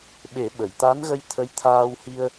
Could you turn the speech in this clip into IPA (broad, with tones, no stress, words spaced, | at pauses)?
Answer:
ɓe˨˩˦ɓə˨˩˨jt̪a˧˥nɣə˧j t̪ʰə˧˥jt̪ʰaː˧whi˧ə̯